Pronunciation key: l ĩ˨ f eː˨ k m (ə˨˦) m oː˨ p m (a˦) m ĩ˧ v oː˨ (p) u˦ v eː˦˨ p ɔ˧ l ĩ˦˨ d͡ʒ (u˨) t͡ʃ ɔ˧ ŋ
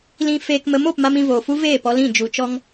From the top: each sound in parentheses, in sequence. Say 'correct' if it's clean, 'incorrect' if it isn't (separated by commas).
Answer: correct, correct, incorrect, correct